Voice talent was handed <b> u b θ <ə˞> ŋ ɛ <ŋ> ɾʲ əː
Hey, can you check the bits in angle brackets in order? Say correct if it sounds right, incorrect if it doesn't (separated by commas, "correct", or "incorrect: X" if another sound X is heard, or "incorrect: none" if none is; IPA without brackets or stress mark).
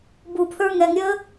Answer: correct, correct, correct